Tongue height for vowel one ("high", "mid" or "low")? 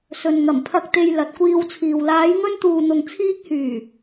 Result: mid